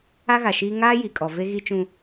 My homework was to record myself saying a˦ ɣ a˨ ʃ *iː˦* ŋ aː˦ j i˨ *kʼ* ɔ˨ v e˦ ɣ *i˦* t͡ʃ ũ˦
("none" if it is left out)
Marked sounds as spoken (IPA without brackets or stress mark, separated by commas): iː˦, kʼ, i˦